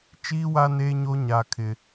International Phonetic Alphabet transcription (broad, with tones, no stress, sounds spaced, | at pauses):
t͡ʃ iː˦ w a˦ n eː˦ ɲ o˦ ɲ a˦ kʰ ɪ˦